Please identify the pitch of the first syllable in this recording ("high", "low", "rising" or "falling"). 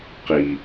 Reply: low